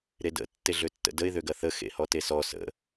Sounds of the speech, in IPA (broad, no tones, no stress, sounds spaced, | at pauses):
ɾ e d ə̰ tː e ɮ ø tː ə̰ d ə ɪ̯ ð ø ɡ ɐ θ ə x ḛ h ɔ t e s ɔ s ə̰